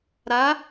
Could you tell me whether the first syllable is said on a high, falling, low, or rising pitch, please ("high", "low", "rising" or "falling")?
rising